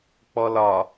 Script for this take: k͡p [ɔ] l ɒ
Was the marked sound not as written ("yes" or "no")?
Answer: no